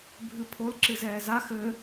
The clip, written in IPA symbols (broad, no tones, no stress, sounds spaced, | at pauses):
bʱ ɨ pʰ o l ǁ ɨ z ɛː z a x ɘ